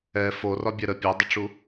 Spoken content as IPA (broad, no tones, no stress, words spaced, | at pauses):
ɛ forɒbʲɛ ɾə pʲedˤəʈ͡ʂu